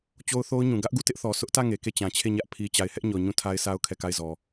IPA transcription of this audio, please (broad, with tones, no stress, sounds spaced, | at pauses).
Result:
t͡ɕ o˦ ʊ̯ θ o˦ ʊ̯ ɲ ũ˨ ɡ ä˦ ʔ ɡ u˦˨ t ɪ˦ ʔ θ ɔ˨ s ʊ˦ ʔ t ä˦˨ ŋ e˨ k e˦˨ t͡ɕ ã˨ t͡ɕʰ e˦˨ ɲ ä˦ ʔ pʰ i˨ t͡ɕ a˨ ɪ̯ h ɛ˦ ʔ ɲ ɔ˨ ɲ ũ˦˨ tʰ a˦ ɪ̯ sʰ a˦ ʊ̯ kʰ ɛ˦˨ k a˦˨ ɪ̯ z ɔ˨